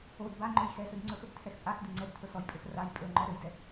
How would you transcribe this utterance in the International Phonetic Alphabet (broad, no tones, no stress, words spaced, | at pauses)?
od ba ŋ͡ǃɵjxɛsɵd ŋ͡ǀɵxɵb tʰɛxpʼaxdɘ ŋ͡ǀɛb tʰɵsɔjpʼɵx raj pʼɵŋ͡ǃɔ ɾɘjdɛ